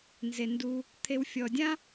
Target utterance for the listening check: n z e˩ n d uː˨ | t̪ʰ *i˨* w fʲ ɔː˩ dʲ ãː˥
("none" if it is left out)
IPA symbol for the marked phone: e˨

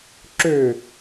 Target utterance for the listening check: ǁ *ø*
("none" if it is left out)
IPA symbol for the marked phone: ø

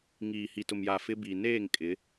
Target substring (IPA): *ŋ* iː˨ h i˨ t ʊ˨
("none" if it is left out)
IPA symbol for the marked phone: ŋ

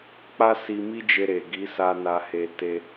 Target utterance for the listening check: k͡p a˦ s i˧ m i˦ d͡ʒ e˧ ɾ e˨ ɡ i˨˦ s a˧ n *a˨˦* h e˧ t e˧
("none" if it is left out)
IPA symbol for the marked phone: a˧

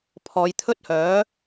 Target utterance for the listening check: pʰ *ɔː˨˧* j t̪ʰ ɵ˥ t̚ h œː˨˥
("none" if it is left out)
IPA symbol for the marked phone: ɔː˨˧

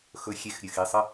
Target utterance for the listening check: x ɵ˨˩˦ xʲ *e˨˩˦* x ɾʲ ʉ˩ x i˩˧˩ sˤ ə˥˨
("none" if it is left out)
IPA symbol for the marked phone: e˨˩˦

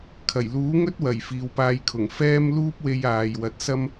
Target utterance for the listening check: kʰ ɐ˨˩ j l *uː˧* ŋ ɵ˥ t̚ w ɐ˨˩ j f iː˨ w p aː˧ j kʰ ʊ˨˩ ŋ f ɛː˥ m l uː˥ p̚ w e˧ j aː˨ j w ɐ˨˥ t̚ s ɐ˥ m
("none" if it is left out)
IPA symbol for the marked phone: uː˨˥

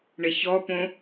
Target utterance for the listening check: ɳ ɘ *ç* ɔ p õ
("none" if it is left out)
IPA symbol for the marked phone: ç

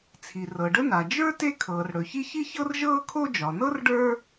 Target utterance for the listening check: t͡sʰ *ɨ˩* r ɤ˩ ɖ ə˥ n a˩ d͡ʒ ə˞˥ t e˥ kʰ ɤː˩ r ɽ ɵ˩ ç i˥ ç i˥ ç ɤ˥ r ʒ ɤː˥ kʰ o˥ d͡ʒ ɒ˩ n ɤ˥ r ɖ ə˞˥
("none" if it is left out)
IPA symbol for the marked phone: i˩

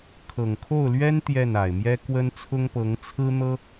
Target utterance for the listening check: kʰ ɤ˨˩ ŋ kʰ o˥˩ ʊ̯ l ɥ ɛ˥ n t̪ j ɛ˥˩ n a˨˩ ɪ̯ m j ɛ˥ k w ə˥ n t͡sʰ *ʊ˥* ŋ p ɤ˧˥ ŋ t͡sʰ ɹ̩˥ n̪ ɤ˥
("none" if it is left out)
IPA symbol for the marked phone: ʊ˥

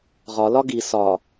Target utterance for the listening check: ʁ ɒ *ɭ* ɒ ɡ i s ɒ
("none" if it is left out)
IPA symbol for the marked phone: l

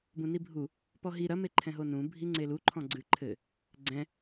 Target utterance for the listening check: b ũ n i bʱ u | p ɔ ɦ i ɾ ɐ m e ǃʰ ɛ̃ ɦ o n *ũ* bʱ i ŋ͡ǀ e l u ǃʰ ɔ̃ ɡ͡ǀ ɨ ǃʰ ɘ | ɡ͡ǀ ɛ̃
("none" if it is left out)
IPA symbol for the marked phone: ũ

